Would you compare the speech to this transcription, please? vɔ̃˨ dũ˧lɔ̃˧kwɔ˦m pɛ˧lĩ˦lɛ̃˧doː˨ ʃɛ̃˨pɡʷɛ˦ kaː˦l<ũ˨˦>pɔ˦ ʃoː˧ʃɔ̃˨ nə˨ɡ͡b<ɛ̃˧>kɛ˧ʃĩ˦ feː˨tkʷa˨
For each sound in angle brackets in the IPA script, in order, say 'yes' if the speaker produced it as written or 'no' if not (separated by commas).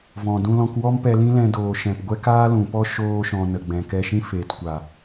no, no